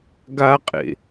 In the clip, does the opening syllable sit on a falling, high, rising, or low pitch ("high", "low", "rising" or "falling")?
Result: high